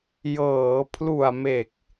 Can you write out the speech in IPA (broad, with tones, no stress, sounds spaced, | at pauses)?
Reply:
j ɤː˩˦ pʰ l u˨˩ a̯ m e˨˩ k̚